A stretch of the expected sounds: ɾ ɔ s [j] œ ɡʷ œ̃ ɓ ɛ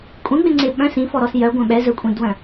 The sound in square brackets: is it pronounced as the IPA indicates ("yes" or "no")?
yes